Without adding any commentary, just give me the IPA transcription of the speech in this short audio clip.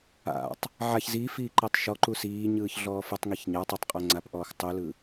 a̰ tˤ | ʕ a ç z iː f iː ǃ e tˤ ʃ ɔ ǃ u s iː ɲ ɯː ç ɮ ɔː f ɯ tˤ ŋ i ç ɲ a tˤ a tˤ qʼ ɤ ŋ͡ǀ a p ʔ ɔː x tˤ u l ɯ

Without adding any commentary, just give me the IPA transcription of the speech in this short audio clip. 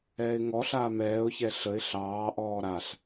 ɛː ɪ̯ ŋ ɔ ɬ aː m ɛː ʊ̯ ç ɛ ɬ ə ɪ̯ ɬ ɑː ʔ ɔː ɾ a ɬ

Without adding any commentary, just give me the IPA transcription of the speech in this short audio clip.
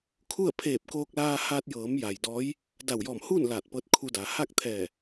kʰ u˥˨ ə̯ pʰ eː˧˩ p̚ k oː˧ k̚ l aː˧ h aː˧ t̚ j ɤː˩˧ m j a˩ j d ɔː˧˥ j | d a˧˩ w j ɔː˧˩ m h uː˥˨ n l aː˧˩ t̚ p ɤː˧˥ t̚ kʰ u˧ d aː˩ h a˥˨ k̚ t̪ʰ ɛː˧˩

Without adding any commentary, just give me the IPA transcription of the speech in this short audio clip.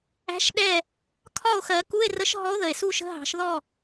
æ̤˧˥ ʃ ɗ ɛ˥˨ | kʰ ɒ˥˨ o̯ x ɜ˨˩˦ k u˧˥˧ e̯ r ə˧˥ ʃ ɦ ɔ˧˥ o̯ ð ə˩ e̯ s u˥˨ ʃ ə̤˧˥˧ ɦ ɑ̤˨˩˦ ʃ ð ɔ˥˨

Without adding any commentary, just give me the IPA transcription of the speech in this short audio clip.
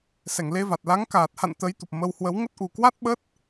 s ɛ˧˩ ŋ l e˧ v a˨˩ t̚ l a˨˦ ŋ k aː˨˩ t̚ h a̰˧˨ n t̪ ə˨˦ j t̪ u˨˩ p̚ m ə˧ w h w ə˨˦ w ŋ ə˦˥ t̚ ʔ u˨˩ k w a˦˥ t̚ ɓ ə˦˥ t̚

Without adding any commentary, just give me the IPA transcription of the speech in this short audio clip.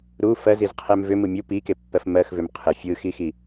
ɾ u f ɜ z i z qʰ ɛ m v ʏ m ɯ mʲ u p i k e pː ɜ f m ɜ x v ʏ m qʰ ɯ fʲ ɯ x i x i

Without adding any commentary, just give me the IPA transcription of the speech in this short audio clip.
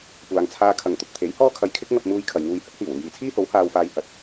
kʷ aː˨ ŋ t͡sʰ aː˧ kʰ ɐ˨˩ ŋ t̪ ʊ˨ k̚ t̪ʰ e˨˥ j h ɔː˥ kʰ ɐ˧ j kʰ ɪ˥ k̚ ŋ ɐ˧ p̚ m uː˧ j kʰ ɐ˨ j ŋ uː˧ j h ɐ˥ t̚ h iː˨˩ w uː˨ j iː˨˩ t͡sʰ iː˥ h o˨˥ w h aː˧ w f aː˧ j h ɐ˨˥ t̚

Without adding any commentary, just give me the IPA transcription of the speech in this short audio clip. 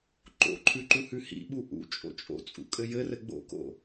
ǃ o̰ ǃʰ ʉ ǃ u h ʉ h ḭ ɓ u ʔ ṵ t͡ʃʼ o̰ t͡ʃʼ o̰ t͡sʼ ṵ kʼ ɘ j ɘ r ɘ ɡ͡b o̰ k o̰

